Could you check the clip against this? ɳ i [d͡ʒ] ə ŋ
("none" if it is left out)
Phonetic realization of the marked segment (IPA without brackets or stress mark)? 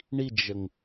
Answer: d͡ʒ